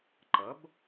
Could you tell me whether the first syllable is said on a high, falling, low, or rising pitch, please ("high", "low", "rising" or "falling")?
rising